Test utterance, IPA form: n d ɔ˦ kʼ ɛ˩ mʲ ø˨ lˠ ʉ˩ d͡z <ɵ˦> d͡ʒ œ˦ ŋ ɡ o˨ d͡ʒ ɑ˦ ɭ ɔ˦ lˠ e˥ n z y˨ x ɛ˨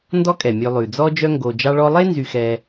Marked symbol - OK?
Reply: no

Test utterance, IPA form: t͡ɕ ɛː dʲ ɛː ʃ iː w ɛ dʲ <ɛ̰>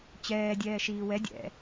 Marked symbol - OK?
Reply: yes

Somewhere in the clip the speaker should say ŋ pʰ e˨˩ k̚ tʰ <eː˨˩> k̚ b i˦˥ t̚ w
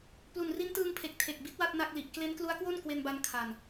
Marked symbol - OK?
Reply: no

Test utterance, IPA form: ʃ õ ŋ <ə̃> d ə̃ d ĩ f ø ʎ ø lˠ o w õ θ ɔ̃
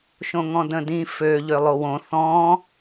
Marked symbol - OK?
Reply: no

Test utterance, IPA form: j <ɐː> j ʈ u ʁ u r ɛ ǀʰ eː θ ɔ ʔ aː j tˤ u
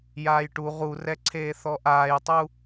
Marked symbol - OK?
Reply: no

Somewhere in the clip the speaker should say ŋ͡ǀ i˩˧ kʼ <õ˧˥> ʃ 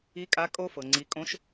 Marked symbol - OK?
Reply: yes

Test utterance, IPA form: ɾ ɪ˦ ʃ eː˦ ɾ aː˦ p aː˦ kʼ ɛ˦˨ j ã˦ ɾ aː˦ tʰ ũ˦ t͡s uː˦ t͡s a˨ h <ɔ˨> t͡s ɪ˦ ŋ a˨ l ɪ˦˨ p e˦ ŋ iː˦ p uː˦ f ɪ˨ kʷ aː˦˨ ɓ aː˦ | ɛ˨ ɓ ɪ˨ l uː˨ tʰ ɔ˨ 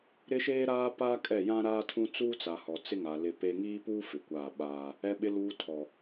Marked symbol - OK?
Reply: yes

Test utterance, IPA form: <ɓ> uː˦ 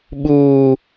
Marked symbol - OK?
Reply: yes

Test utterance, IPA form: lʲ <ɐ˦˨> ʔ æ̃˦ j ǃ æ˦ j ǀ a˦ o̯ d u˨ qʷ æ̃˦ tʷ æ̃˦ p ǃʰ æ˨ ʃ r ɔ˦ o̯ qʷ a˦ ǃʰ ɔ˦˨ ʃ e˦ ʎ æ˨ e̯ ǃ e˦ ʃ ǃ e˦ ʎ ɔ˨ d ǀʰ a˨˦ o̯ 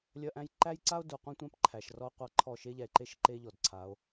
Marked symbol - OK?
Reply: no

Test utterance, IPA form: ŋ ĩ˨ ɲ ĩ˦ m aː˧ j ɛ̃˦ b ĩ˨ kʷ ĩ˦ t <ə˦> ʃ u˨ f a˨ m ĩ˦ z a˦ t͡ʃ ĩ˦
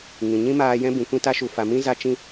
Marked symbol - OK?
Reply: no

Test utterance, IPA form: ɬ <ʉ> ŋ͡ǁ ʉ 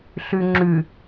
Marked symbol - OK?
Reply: yes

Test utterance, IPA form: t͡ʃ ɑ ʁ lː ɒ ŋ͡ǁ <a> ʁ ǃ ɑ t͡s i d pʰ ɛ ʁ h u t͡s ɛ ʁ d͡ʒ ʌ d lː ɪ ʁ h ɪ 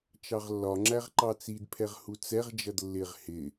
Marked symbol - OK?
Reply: no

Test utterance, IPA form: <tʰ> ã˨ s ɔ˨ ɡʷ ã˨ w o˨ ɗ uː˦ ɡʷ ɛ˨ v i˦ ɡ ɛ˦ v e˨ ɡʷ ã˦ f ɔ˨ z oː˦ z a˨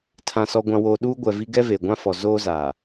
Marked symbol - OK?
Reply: yes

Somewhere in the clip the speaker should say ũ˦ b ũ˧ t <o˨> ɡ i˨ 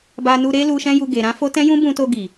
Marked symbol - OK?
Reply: no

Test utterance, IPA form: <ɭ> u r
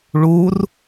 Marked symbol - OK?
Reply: yes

